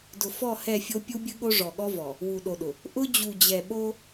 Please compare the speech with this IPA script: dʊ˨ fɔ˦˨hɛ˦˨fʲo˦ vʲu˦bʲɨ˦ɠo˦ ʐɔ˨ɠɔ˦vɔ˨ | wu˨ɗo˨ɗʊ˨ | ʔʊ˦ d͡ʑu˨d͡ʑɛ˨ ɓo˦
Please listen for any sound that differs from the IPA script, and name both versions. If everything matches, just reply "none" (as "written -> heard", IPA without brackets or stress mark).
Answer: vʲ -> pʲ